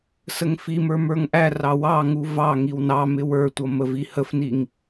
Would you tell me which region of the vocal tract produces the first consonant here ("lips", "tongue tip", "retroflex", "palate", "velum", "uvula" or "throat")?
tongue tip